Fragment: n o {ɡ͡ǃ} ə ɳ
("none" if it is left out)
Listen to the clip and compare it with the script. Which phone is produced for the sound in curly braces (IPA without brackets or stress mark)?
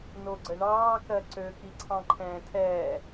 ɡ͡ǀ